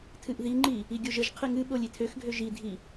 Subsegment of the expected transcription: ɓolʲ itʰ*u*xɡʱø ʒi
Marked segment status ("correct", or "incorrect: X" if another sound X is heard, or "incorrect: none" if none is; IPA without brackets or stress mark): incorrect: ø